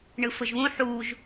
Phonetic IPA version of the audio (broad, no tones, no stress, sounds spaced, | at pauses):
ɳ ɯ f ɵ ʒ β ũ ħ u ʒ